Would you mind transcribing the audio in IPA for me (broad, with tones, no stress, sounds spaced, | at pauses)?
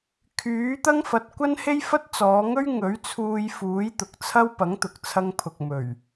kʰ yː˨˥ t̪ ɐ˥ ŋ f ɐ˨˥ t̚ kʷ ɐ˥ n h e˥ j f ɐ˥ t̚ t͡s ɔː˨˧ ŋ ɵ˥ ɥ ŋ ɵ˨˥ ɥ t͡sʰ uː˧ j f uː˨˥ j t̪ ʊ˨ k̚ t͡sʰ ɐ˥ w p ɐ˨˥ ŋ t̪ ʊ˨ k̚ t͡sʰ ɐ˧ ŋ pʰ ʊ˨ k̚ m ɵ˨˩ ɥ